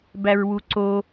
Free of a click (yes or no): no